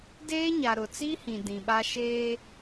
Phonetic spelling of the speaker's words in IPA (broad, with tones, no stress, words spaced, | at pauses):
deː˦ɲa˨ ɾʊ˨t͡si˦hĩ˨ dĩ˨ɓa˦ ʃeː˦